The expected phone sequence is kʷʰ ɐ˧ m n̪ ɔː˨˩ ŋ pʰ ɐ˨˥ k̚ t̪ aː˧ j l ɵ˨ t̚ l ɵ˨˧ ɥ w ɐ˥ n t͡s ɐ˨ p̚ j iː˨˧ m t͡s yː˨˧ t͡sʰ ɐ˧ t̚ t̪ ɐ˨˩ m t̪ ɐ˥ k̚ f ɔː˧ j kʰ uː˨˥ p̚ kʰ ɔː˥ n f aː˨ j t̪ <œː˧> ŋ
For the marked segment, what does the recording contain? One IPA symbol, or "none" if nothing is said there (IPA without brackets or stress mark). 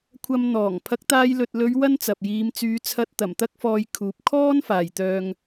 œː˧